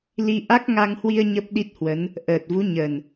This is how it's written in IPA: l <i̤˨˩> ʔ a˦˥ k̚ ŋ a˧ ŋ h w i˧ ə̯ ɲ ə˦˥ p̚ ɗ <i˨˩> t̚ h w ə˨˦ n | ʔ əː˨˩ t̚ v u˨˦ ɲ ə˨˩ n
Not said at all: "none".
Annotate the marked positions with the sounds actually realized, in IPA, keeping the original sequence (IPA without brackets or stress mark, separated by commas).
i˧, i˦˥